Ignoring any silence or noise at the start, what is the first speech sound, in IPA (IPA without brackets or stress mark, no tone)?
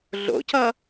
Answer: ɮ